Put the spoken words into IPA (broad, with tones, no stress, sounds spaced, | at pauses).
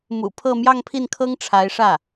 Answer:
m ṵ˨˩ pʰ ɤ˥˧ m j ɑ˥˧ ŋ pʰ i˥˩ n kʰ ɤ˥ ŋ ʈ͡ʂʰ a˧˥ ɪ̯ ʂ ä˥˩